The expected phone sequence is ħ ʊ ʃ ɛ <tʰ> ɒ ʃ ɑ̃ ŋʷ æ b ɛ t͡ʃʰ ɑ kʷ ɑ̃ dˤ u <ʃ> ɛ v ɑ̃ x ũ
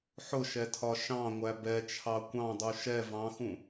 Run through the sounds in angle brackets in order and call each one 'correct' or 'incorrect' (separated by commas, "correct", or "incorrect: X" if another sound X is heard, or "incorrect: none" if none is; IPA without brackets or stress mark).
correct, correct